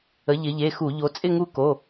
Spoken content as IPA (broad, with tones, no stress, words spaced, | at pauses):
ə˩˧ ʎɪ˩˧ʎe˩˧˩xu˧˩˧ ʎo˩˧t͡sʼɪ˦˨ŋu˦˨ ko˩˧˩